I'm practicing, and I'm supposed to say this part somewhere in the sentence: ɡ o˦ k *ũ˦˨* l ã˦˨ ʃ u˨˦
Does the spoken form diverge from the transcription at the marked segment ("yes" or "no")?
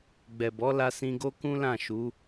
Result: yes